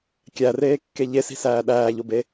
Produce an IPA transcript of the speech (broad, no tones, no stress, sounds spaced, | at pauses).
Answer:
kʲ æ r eː kː e ʎ e s i̤ s æː ɗ æː ʎ o b e